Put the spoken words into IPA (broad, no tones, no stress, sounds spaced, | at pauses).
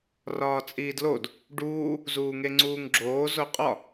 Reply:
r ɒː t͡sʼ iː d l o d | ɖ uː | z uː ŋ e ŋ͡ǀ uː ŋ ɡ͡ǁ oː z o qʼ ɒ